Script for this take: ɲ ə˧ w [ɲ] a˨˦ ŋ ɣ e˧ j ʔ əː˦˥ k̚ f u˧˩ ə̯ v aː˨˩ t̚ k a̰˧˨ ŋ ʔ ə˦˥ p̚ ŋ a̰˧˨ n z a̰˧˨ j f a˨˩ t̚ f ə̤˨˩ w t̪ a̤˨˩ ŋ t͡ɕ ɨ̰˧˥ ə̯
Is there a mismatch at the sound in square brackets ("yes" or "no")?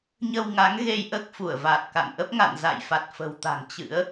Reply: yes